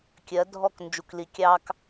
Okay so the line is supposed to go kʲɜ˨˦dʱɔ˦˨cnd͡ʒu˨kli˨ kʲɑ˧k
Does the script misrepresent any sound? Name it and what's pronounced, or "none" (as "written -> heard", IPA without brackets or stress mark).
c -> k